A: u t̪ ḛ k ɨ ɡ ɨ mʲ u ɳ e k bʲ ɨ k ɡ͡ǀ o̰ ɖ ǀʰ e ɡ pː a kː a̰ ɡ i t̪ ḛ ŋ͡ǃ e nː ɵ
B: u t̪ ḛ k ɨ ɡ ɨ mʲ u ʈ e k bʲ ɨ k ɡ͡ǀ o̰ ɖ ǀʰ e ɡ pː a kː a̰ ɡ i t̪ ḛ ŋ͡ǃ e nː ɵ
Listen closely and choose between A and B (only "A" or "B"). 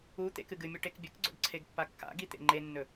B